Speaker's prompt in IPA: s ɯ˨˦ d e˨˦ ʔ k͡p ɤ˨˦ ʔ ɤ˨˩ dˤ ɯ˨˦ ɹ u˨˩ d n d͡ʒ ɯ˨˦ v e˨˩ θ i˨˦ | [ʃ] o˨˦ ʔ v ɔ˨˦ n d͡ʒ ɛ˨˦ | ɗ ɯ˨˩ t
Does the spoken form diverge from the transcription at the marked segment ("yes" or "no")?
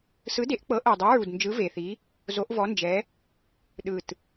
yes